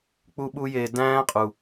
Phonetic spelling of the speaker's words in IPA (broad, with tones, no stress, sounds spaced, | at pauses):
k͡p u˦ ɓ u˦ j e˧ d æ̃ː˦ qʼ u˨